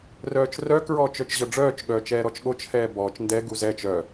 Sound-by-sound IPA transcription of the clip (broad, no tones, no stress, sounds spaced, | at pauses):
r œː t͡ʃ r œ k ɹ ɔː t͡ʃ œ t͡ʃ ʑ ɤ ɖ͡ʐ œː t͡ʃ ɠ œː t͡ʃ ɛː ɾ ɔ t͡ʃ ɠ o t͡ʃ h ɛː b ɔː t͡ʃ n d ɛ ɡ u z ɛ t͡ʃ œ